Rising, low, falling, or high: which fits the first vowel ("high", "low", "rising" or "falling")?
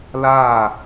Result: falling